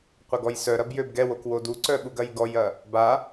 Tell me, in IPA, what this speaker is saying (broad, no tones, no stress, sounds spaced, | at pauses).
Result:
qʷ ɐ ɡ ɔ j s œ ɾ ɐ b j ø b ɡ ɛ w o k w o d u ǀ œ ɓ u ɡ ɐ j ɡ ɔ j ɐ | b a